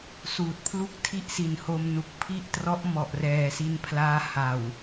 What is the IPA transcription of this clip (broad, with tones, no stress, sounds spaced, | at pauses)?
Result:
s uː˨˩ t̚ pʰ l u˥˩ k̚ tʰ i˥˩ ʔ s i˨˩ n h o˧ m n u˨˩ k̚ pʰ i˥˩ ʔ t r ɔ˦˥ ʔ m ɔ˨˩ ʔ r ɛː˨˩ s i˧ n pʰ l aː˦˥ h a˨˩ w